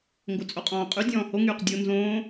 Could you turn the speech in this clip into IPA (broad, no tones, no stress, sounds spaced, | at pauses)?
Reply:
ŋ ɡ o t͡sʼ o qʼ ɔ̃ː qʼ y dʲ ɔ̃ː h o ŋ yː q dʲ o n z õː